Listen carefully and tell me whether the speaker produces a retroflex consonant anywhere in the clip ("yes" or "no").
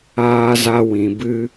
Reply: no